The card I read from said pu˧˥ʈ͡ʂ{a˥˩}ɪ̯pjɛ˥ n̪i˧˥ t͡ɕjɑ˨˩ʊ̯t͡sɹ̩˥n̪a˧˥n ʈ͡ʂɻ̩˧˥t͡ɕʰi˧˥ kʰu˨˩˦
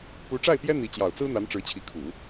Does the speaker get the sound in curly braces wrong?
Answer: no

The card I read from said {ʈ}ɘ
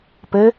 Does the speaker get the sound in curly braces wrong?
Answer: yes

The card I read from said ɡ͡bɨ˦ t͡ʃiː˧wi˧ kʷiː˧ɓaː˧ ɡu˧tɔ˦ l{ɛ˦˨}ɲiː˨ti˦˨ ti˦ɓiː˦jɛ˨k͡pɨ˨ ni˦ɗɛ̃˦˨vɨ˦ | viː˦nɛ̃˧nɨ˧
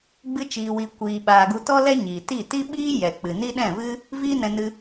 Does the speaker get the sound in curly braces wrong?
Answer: yes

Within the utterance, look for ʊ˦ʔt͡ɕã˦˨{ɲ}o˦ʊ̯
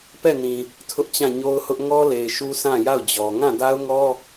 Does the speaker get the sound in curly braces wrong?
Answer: no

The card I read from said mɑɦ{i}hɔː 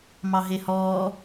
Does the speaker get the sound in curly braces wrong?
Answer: yes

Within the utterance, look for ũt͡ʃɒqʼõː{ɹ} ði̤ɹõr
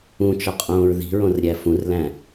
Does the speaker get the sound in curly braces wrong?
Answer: no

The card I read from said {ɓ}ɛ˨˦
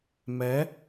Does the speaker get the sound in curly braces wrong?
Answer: yes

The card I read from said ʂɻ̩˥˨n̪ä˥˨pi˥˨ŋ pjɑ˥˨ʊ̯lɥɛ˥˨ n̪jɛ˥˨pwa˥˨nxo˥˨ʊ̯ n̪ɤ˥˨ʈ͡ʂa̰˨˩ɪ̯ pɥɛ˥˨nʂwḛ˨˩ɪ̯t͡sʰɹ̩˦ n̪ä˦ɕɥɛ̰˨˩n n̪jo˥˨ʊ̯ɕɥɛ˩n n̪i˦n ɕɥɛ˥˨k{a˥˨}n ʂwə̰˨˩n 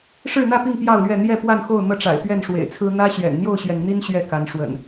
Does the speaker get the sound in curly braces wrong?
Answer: yes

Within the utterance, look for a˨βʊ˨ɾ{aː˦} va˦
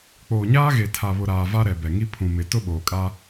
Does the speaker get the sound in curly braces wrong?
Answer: yes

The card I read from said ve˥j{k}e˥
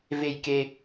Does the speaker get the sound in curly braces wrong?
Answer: no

